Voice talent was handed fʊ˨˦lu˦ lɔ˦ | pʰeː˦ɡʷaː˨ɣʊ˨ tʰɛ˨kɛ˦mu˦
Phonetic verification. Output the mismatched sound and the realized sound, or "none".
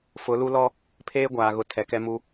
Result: none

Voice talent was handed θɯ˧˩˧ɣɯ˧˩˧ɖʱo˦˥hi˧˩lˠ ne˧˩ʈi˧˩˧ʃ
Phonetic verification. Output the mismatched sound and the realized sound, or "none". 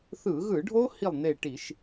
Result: none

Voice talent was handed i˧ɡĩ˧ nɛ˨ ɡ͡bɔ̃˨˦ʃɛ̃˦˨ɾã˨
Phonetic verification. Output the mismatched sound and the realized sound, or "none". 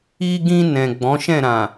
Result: ɛ˨ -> ɛ̃˨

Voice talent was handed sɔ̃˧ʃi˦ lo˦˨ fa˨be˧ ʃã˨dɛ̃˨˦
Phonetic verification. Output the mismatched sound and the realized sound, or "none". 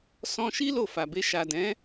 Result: ã˨ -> a˨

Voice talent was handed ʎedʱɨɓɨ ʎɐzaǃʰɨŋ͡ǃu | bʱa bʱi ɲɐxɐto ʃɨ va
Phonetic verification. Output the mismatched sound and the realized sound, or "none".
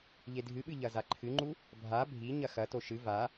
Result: none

